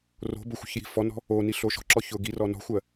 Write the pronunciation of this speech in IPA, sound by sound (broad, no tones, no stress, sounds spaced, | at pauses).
r o̤ b ʊ xʷ ə̤ ç j i̤ f ɔ n ɔ̤ | o n i ɬ o ʃ ɔ̤ ǁ ɔ ç ʊ ɡ i r ɔ n ɔ̤ xʷ ɜ